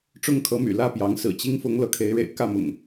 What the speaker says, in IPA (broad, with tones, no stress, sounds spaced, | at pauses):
ʈ͡ʂ ʊ˦ ŋ kʰ ɤ˨˦ m y̰˨˩ l ä˥˨ p j ɑ˨˦ ŋ s ɹ̩˨˩ t͡ɕ i˦ ŋ f ʊ˨˦ ŋ l ɤ˨˦ kʰ e˨˦ ɪ̯ ɻ ḛ˨˩ ɪ̯ k ä˥˨ m ʊ̰˨˩ ŋ